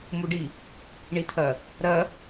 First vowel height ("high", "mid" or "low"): high